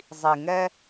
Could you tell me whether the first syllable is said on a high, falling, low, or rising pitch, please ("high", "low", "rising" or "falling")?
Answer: low